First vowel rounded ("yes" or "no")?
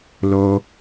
yes